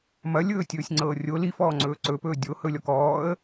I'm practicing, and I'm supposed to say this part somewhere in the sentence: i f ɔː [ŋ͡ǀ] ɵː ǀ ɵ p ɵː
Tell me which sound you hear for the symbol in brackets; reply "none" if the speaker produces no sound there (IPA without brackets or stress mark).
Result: ŋ͡ǀ